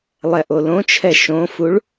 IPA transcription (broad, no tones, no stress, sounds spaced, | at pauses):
lˠ ɛ ʔ o l õ t͡ʃʰ ɛ ʃ õ f u ɭ